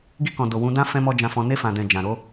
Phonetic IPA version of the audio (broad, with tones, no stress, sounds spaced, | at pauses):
ɡ i˧ k ɔ̃˨ d o˨ w ũ˨˦ d ã˦ f ɛ̃˦ m ɔ˦ d͡ʒ ã˧ f ɔ̃˧ n e˧ f ã˨ d ɛ̃˨ d͡ʒ ã˨ ɾ o˨˦